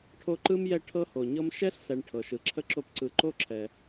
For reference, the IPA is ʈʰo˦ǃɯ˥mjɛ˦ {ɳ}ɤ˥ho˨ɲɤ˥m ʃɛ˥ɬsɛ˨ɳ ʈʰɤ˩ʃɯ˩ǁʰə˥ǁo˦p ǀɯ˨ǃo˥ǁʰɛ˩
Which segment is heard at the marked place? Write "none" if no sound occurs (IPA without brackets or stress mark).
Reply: ʈʰ